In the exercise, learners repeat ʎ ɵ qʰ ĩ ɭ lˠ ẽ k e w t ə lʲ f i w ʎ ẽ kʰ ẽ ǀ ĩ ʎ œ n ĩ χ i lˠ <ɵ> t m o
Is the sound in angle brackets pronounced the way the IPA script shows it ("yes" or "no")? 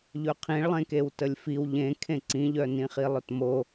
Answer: yes